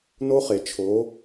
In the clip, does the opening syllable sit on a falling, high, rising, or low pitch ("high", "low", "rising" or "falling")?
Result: high